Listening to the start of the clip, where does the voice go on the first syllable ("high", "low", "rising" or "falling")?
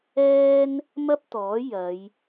high